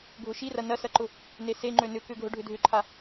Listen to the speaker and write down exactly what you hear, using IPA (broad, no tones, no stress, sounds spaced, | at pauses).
ɡʱ ʊ ʃ i r ɐ n ɐ s ɐ ǃ ʊ | n e s e ŋ͡ǃ ø n ʏ k ʏ ɡʱ ʊ ɖʱ ʏ dʱ ʏ ǃʰ a